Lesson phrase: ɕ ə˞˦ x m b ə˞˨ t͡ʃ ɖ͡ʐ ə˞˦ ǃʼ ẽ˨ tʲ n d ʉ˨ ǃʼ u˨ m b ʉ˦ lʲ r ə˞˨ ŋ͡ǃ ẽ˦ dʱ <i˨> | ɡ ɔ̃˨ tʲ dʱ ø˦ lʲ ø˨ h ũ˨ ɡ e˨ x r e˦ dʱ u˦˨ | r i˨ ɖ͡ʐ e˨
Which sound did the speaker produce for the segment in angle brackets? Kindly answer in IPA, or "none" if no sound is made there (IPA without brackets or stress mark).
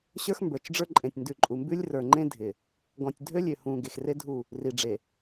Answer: ɪ˨